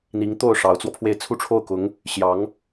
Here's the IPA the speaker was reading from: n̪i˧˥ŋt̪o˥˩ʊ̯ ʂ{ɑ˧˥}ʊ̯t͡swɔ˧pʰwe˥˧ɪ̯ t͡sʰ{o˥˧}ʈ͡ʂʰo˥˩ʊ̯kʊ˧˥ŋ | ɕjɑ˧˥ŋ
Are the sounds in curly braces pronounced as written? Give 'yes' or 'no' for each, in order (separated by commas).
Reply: yes, no